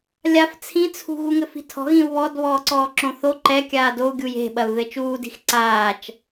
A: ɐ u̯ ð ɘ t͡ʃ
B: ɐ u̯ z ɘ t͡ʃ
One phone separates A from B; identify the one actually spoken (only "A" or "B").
A